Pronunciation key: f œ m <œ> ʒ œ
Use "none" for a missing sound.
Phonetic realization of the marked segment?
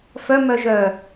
œ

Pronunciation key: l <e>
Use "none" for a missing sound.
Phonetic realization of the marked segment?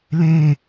ẽ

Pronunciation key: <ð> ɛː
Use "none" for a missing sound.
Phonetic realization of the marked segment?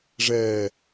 ʐ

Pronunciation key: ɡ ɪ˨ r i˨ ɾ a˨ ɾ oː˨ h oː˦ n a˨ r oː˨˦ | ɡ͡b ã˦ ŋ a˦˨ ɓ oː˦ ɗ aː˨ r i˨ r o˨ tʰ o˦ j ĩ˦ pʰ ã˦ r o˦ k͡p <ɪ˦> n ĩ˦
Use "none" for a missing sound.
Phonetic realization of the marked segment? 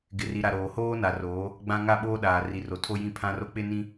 ɪ˦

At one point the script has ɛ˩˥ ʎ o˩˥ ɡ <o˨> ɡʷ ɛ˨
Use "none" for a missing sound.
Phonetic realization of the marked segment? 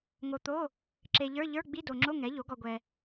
ɔ˨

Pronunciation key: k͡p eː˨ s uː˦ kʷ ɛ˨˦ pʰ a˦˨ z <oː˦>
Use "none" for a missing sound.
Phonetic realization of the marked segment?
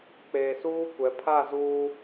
uː˦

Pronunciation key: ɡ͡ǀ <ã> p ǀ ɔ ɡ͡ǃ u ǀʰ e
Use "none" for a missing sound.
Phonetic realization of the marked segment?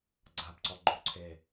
a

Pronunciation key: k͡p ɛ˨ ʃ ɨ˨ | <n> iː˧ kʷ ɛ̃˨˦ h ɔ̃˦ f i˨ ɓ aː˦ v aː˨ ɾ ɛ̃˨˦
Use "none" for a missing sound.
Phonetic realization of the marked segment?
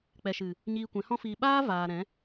ɲ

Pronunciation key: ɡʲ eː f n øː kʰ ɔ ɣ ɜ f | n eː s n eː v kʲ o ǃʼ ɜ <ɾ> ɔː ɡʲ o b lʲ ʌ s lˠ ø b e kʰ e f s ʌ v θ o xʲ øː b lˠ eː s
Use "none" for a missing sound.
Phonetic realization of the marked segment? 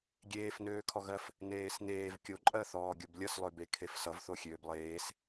θ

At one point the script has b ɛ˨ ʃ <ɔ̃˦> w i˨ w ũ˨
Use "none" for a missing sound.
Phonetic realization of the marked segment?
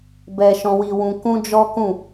ɔ̃˨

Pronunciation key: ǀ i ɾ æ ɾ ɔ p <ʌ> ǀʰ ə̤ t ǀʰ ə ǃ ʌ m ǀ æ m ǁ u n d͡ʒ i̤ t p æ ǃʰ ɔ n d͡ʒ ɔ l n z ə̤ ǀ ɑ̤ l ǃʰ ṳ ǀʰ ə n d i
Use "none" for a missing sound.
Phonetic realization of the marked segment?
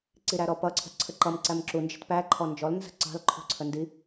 ʌ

